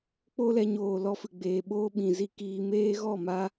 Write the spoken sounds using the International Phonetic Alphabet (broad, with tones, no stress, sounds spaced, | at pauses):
k͡p o˦ l ɛ˧ ɲ oː˨ l ɔ˧ f ɨ˨ ɡ͡b eː˨ ɓ oː˦ ɓ ĩ˨ z i˧ k iː˧ m eː˧ ɣ ɔ˦˨ m a˧